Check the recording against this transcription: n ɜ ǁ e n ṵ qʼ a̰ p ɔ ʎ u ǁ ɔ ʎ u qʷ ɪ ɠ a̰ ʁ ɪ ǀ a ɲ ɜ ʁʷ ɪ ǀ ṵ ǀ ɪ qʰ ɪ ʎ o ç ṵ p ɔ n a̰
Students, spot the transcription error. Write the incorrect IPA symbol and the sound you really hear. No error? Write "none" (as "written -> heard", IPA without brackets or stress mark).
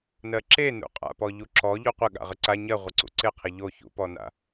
none